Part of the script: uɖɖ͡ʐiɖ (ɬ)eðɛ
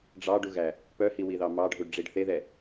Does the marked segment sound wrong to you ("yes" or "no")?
yes